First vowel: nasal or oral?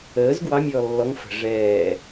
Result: oral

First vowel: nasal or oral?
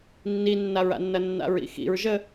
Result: oral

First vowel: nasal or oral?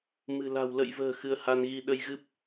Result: oral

